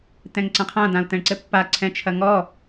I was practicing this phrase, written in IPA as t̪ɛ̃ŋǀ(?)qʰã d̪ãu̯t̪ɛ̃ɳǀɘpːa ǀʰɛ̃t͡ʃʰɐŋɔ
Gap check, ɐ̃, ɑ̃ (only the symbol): ɐ̃